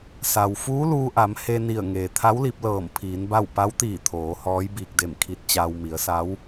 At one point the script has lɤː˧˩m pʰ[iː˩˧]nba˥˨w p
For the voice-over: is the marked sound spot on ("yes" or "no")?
yes